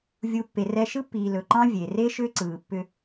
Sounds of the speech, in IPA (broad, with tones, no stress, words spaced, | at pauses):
vʲu˨ pːe˨rɛ˧ ʃɯ˦pːiː˨ lɵ˨ǃɑ̃˦ vʲe˨ re˦ʃʏː˦ǀɯː˨pːʏ˧